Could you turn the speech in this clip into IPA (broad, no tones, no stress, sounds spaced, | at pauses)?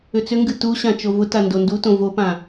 ʏ t͡s ʏ ŋ ɡ ɨ t u ɕ ã t͡ʃ o v ʊ t a n d o n d u t õ v o p ã